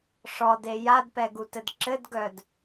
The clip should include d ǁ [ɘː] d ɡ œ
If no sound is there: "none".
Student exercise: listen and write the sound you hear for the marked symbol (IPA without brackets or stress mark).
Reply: ɘ